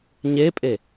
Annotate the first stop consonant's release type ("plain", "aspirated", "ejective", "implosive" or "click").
ejective